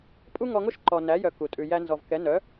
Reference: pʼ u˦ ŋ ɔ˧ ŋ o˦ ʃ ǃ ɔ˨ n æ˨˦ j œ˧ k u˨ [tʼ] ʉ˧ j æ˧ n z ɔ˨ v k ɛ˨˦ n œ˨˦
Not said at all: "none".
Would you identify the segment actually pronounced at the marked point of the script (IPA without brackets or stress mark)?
tʼ